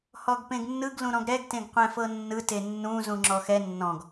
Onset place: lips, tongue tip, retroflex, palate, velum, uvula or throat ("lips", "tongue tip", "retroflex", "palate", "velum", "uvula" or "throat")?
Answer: throat